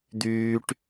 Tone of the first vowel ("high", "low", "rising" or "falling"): high